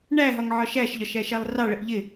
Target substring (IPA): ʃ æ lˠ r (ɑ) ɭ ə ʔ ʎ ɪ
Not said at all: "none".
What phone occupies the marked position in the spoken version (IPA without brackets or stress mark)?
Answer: ɑ